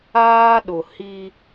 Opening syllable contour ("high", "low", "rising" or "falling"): high